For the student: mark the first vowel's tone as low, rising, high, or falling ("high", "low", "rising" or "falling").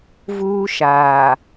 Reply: high